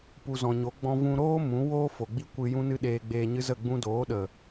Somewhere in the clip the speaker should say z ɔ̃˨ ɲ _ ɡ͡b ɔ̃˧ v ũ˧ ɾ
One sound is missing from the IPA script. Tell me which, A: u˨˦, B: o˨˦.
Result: B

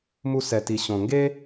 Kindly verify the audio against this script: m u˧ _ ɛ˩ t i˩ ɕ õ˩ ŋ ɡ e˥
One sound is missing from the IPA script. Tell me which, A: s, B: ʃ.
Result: A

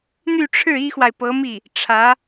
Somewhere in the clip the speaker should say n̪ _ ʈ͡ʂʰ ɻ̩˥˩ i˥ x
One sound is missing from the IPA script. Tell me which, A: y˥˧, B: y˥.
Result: A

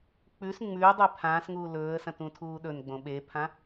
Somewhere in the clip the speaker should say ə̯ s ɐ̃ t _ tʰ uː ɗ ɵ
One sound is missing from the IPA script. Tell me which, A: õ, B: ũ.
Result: B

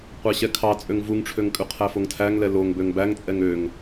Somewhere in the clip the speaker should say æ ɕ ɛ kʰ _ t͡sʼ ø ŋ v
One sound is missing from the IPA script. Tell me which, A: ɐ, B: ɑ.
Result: B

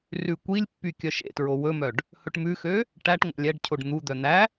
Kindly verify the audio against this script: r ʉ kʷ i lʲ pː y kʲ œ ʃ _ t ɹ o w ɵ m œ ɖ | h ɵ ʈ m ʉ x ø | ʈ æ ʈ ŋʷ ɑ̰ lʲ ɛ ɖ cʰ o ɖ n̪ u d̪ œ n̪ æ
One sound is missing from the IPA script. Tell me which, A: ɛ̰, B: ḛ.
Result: B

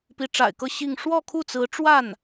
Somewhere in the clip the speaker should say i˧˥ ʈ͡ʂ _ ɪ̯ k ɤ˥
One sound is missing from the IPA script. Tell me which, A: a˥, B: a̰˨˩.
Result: B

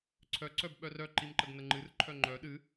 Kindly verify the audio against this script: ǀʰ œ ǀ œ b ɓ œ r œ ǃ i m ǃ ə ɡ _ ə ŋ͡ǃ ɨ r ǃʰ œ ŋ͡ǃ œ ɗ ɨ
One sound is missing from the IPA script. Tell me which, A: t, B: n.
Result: B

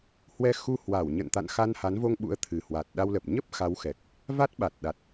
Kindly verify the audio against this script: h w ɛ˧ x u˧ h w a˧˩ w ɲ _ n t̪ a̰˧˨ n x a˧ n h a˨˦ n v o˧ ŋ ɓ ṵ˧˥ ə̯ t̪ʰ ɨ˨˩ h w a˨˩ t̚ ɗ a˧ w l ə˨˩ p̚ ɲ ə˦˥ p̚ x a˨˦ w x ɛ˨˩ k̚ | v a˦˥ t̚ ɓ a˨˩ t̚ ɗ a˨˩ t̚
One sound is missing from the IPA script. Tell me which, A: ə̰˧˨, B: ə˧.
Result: A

